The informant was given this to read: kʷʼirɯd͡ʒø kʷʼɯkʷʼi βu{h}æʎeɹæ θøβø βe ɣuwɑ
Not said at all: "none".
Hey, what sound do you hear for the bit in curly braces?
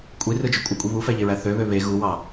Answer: f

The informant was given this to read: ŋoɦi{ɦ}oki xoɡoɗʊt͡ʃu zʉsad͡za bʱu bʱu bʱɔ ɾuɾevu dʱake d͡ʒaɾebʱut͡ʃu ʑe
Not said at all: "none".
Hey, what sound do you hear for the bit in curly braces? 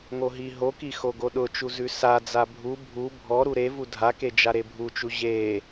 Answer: ɦ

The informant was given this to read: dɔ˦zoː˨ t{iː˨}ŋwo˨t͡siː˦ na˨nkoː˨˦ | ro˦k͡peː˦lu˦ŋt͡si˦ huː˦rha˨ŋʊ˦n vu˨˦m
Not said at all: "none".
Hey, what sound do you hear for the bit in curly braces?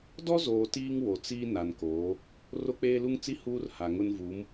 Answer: iː˦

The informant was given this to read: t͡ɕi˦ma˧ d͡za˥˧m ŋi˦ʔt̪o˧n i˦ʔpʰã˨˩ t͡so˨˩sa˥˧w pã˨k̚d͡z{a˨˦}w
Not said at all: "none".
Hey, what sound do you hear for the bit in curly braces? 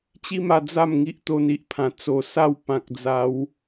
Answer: a˨˦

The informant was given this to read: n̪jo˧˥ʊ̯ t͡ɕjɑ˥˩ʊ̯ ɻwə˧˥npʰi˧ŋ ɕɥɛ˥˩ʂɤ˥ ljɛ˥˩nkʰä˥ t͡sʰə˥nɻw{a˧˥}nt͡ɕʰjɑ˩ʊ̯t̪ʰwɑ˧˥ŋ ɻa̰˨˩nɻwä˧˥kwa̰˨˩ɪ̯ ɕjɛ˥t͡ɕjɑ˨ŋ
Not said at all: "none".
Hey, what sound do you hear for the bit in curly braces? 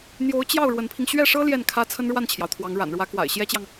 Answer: a˥˩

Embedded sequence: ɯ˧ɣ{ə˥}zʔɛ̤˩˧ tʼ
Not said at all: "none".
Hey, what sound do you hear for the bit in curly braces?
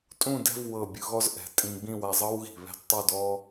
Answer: ɔ˥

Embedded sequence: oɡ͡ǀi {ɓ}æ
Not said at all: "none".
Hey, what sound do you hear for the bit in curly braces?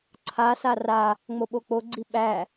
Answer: ɓ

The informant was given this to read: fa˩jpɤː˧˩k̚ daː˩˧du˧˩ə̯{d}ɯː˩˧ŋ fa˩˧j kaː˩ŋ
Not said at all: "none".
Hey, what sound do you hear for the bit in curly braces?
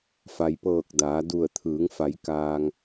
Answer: t̪ʰ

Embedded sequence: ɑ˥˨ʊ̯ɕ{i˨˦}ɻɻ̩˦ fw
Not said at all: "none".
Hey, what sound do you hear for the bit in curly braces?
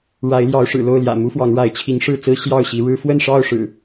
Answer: i˨˦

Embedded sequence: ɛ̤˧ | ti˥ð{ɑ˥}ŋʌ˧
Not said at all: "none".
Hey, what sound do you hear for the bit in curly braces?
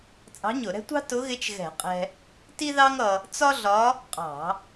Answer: ɑ˥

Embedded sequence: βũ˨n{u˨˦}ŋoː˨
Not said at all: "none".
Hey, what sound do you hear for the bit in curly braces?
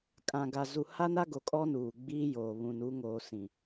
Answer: u˨˦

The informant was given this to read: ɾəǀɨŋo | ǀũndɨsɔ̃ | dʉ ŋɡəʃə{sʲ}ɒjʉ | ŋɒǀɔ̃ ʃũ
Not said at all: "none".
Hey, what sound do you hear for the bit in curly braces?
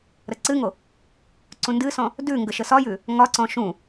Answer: s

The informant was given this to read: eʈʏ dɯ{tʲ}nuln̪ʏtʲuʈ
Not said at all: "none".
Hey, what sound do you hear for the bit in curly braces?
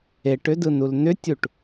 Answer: none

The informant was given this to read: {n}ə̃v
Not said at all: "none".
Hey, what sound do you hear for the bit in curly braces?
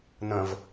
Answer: n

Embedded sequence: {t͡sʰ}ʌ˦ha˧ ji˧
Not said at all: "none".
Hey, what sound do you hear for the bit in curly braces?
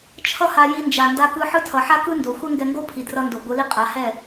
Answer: t͡ʃʰ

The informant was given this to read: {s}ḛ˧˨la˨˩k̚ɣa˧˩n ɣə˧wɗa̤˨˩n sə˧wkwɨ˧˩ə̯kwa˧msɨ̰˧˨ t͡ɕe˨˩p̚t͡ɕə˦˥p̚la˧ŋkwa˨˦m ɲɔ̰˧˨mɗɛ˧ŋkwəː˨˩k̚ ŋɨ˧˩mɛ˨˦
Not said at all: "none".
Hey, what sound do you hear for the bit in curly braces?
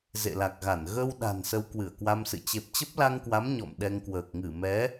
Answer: z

